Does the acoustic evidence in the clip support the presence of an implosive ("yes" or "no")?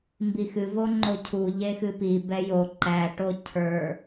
no